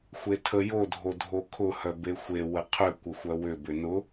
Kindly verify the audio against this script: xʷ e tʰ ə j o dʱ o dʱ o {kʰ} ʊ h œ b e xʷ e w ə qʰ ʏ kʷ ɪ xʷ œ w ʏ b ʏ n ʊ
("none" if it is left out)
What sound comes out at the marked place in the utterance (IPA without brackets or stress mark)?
kʰ